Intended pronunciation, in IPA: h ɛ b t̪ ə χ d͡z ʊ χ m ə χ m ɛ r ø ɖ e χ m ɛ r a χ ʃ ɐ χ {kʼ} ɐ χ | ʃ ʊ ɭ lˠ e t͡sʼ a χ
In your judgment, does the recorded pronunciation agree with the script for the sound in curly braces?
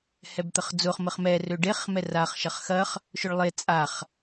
no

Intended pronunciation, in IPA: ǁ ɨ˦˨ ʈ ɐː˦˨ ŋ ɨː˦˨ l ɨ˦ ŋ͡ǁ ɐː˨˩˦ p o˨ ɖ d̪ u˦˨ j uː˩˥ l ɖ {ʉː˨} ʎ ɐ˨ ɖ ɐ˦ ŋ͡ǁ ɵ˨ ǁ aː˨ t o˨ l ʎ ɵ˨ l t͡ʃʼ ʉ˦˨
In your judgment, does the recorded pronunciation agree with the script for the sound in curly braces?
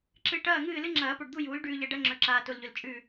yes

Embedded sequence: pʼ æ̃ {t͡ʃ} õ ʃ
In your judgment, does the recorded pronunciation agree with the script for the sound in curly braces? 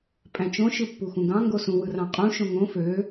yes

